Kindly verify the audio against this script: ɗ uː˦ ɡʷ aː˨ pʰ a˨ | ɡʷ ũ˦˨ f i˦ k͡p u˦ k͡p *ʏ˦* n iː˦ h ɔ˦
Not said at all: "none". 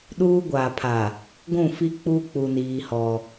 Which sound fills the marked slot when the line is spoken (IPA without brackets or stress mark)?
u˦